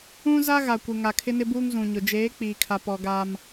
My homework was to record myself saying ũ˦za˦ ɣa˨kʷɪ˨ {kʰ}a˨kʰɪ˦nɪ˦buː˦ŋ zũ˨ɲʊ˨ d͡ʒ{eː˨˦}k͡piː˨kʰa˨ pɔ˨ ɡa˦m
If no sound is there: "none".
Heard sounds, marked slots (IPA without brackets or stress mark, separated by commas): ŋ, eː˨˦